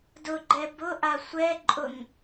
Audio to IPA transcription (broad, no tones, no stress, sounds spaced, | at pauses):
d ʊ ɡ͡ǃ ɛ b ʊ ʔ a sʷ ɛ ǃʼ ʊ ŋ